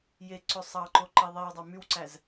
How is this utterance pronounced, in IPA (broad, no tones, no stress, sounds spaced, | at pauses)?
j e ǀ ø sˤ ɑ ǃ o ǃ i ðˤ i w dˤ ɑ m y w ǀ æ z